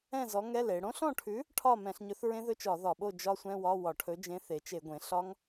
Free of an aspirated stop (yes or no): no